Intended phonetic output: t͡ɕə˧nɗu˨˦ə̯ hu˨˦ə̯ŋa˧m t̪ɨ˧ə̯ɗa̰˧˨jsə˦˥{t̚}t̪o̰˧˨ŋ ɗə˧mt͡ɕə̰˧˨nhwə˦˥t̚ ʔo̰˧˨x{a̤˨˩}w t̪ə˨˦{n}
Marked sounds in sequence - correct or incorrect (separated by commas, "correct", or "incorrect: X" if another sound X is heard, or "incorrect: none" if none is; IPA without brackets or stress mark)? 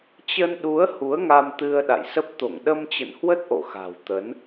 incorrect: p̚, correct, correct